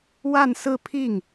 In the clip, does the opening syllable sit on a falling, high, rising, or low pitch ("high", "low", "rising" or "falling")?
falling